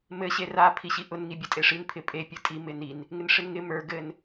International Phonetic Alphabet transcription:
m ɘ ɕ e r a pʰ i ɕ i ʔ ʊ n ŋ i bʲ ɘ tʼ e ʂ i n pʰ ɪ pʼ e pʲ ɘ tʼ i m ɪ n i n | ŋ ɪ n ʂ ɪ n ŋ ɪ m ə˞ ɡ ɘ n

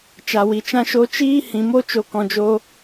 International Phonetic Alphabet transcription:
t͡ʃ a˨ w i˨ t͡ʃ ã˦ ʃ o˦ t͡ʃ iː˦ h ĩ˨ m o˦ t͡ʃ o˧ k ɔ̃˧ d͡ʒ o˦

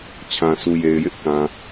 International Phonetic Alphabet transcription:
t͡ɕʰ ã˨ sʰ u˨ j e˨ ɪ̯ j ɪ˦ ʔ k ã˨

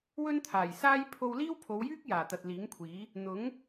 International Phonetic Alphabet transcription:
w ɵ˥ n t̪ʰ aː˨˩ j s aː˥ j pʰ o˧ w l iː˥ w pʰ o˨˧ w j yː˥ k̚ j aː˨˩ t̪ ɐ˨ t̚ l iː˨˥ ŋ kʷʰ iː˨˥ | n̪ ʊ˨˥ ŋ

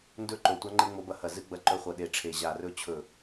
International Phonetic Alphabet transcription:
n d ɵ˥ ǃ o˧˩ tʷ a˥ ŋ͡ǃ e˥ ŋ͡m o˧˥ b ɐ˧˥ h ɐ˧˩ z ɨ˥ ɡ͡b ɐ˧˥ ǃ ɵ˧˥ χʷ ɐ˧˩ ɗ e˧˩ ʈ͡ʂʰ e˧˩ ʑ a˧˩ r ɵ˥ t͡ɕʰ ɵ˧˩

